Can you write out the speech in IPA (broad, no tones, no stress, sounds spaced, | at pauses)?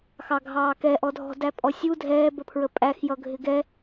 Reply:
x ɑ ɡʱ ɑː k ɛ ʔ ɔ dʱ ɔ̤ d æ pʼ ɔ sʲ u dʱ ɛː b ə pʰ ɹ ə pʼ æ x j ʌ ɡʱ ɪ ɡ ɛ